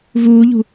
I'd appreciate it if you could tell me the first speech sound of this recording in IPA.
v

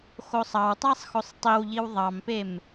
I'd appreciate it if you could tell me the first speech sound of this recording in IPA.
x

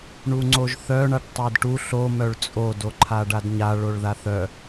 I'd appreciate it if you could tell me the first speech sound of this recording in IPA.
ɳ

